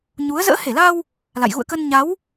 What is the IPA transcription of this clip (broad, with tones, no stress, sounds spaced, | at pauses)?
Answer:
ɲ u˨˦ ə̯ z ə̰ː˧˥ h e˧˩ l a˧ w | l a̰˧˨ j ɣ ṵ˧˨ ə̯ k ə˧ n ɲ a˨˦ w